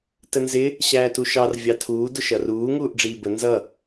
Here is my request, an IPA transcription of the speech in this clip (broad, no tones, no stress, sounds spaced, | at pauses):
t ə n z ɪ | ɕ æː t u ʃ ɑ r vʲ ɑ tʰ uː d ʊ ʃ ʌ r uː ŋ uː ʔ ɖ͡ʐ iː b ə n z ʌ